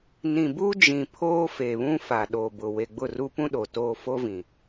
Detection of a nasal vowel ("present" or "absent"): present